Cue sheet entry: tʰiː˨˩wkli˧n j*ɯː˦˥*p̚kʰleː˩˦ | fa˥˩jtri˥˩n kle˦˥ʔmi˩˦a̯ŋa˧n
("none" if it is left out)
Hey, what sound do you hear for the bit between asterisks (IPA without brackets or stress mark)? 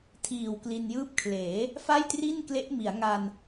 ɯː˦˥